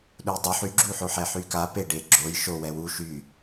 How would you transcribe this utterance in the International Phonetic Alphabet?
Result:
ɗ u j dˤ o ħ y ɡ͡ǁ u ħ o ħ ɛ ħ y k a p e ɖ e ɡ͡ǁ o j ʃ o w ɛ w u ʃ y

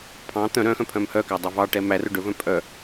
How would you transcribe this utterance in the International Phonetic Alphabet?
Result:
pʰ ɑ̃ t̪ œ̃ ɾ œ̃ x œ̃ pʰ œ̃ m h œ k æ dˤ ɛ v ɑ ʈ ɛ m æ r ɵ ɖ ɵ v œ̃ pʼ œ

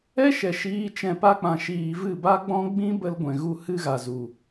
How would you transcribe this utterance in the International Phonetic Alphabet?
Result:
ɛ˦ ʃ ɛ˨ ʃ iː˦ t͡ʃ ɛ̃˧ p a˦ k͡p ã˨ ʃ iː˨ v ɨ˦˨ b a˦ ɡ͡b ɔ̃˦ ɡ͡b ĩ˦ b ə˧ l ɡʷ ɛ̃˨ ɣ u˦ h ɨ˦ ɣ a˨ z u˨

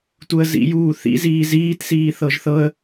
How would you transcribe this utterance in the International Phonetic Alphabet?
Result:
t u ə̯ z ḭ j uː θ ḭ z iː z iː t s iː θ ɤ ʒ θ ɤ ə̯

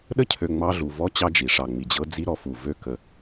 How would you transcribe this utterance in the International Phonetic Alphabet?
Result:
ɗ ə˥ cʰ ø˨ ŋ͡m ɑ˦ ɮ u˨ v ɔ˥ t͡ɕ ɑ˦ d͡ʒ i˩ ʂ ɑ˨ ŋ͡m i˨ d͡ʑ ɤ˥ d͡z i˥ ɾ ɔ˦ f u˨ v ø˦ k ə˨

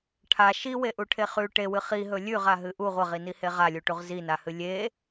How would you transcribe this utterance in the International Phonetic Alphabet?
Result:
ʈʰ a ʃ i w e ʔ u ʈʰ e χ ʉ ʈ e w ɨ χ i ɦ ɵ lʲ ʉ ʁ a ɦ ɨ ʔ u ʁʷ ɐ ʁ i n i h e ʁ a lʲ u ʈ u ʁ z i n a h ɨ lʲ e

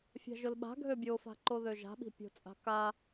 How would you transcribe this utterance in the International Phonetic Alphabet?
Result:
fʲ a̤ ʒ ʊ l ɓ a̤ ɡʱ ø bʲ o f a̤ ǃ o ð ø ʒ a̤ ɓ i̤ pʲ o̤ t͡sʼ a̤ k a

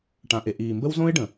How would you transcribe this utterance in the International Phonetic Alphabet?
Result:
ʈ ã˨ ʔ e˨ ʔ iː˨ m b ə˦ w z õ˦ ɪ̯ ɖ ə̃˨

